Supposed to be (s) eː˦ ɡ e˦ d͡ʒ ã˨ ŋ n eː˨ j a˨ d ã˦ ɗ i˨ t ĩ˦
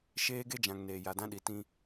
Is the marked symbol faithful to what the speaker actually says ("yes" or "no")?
no